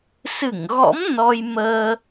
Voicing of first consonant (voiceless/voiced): voiceless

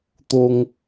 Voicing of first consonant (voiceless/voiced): voiceless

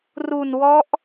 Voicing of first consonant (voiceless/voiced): voiced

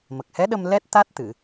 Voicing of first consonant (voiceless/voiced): voiced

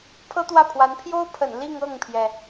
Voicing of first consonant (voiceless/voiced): voiceless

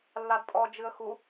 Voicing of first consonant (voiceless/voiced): voiced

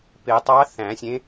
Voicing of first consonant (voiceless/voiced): voiceless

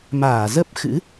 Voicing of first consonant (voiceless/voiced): voiced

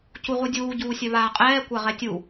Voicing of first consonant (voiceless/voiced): voiceless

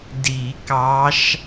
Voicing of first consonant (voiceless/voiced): voiced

